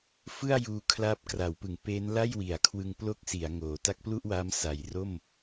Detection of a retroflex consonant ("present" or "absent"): absent